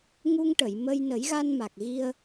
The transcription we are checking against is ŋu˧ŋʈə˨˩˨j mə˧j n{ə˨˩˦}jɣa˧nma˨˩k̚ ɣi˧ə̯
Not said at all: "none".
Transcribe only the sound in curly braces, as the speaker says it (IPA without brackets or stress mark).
ə˨˩˦